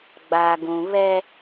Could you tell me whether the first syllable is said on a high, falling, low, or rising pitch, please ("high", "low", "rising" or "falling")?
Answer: low